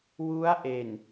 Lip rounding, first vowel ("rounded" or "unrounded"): rounded